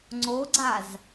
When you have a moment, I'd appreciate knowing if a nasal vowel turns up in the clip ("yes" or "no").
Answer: no